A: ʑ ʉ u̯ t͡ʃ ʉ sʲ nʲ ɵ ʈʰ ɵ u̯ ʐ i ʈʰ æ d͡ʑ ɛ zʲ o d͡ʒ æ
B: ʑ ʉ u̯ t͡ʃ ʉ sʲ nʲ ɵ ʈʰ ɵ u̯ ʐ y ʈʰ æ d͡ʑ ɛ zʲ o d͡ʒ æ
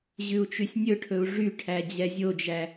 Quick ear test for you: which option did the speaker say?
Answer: B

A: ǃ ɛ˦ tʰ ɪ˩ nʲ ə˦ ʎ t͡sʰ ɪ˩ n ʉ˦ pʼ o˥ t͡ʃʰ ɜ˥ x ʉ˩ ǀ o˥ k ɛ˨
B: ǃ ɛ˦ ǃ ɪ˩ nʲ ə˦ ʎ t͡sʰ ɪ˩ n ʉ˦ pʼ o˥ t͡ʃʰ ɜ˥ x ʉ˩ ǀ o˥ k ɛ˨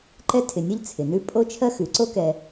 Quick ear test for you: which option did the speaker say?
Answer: A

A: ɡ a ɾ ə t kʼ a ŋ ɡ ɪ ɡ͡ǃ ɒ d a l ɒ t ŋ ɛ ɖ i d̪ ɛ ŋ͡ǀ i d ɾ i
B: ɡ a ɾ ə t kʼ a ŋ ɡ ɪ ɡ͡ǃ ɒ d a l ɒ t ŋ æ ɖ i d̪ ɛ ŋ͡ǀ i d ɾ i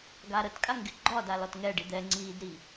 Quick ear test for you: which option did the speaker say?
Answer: A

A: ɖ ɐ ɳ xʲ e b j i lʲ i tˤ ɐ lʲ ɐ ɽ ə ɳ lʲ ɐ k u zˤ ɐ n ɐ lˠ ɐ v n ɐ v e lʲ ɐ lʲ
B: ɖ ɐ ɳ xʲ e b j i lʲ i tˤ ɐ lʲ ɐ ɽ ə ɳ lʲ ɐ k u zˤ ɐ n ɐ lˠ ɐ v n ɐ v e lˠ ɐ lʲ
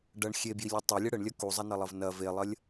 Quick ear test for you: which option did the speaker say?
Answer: B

